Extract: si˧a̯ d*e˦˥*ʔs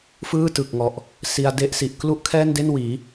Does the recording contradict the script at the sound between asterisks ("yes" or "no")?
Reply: no